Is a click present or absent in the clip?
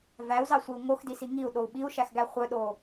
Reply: absent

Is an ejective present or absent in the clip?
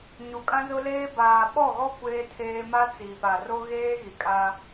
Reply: present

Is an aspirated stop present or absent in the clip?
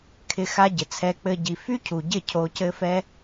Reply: present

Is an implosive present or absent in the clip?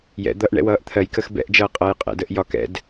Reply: absent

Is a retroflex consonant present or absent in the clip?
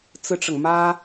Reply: present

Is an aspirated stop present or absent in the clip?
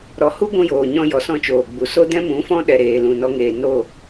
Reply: absent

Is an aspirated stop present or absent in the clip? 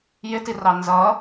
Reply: absent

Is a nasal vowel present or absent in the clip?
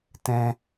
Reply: present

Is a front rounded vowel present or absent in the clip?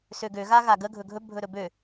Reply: present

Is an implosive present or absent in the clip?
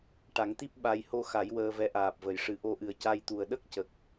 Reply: present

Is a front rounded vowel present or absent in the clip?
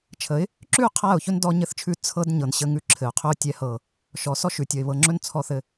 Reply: absent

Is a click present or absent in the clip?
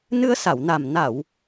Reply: absent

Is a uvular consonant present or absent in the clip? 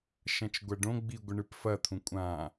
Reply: absent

